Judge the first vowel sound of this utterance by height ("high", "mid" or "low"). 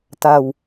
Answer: low